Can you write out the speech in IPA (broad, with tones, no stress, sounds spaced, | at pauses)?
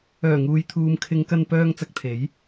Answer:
œː˨˩ ŋ uː˨ j t̪ʰ uː˨ m kʰ ɪ˨˧ ŋ k ɐ˧ n p œː˧ ŋ t͡s ɐ˧ k̚ t̪ʰ e˨˥ j